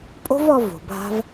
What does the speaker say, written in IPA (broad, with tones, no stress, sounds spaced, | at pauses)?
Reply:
pʼ o̤˦ v ɔ˧ v o̤˨ bʱ a̤˦ v